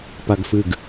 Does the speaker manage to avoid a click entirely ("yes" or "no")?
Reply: yes